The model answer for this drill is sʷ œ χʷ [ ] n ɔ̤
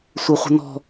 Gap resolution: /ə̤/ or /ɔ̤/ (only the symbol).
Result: ə̤